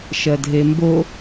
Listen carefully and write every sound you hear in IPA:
ʃ ɜ dʱ e m b o

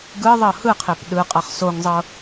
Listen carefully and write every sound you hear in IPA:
ɡ ɯ ðˤ ɤ h ɯ qʰ e p ɗ ɯ qʼ ɤ χ s o ŋ zˤ ɤ

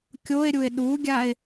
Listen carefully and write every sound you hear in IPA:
kʲ o e̯ ɾʲ u e̯ ɗ u ɡʲ a e̯

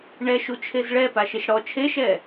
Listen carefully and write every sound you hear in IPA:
ɳ ɛ ʃ u t͡ʃʰ e z ɭ ɛ p a ʃ ɪ ʃ ɽ ɔ t͡ʃʰ e ʃ ɛ

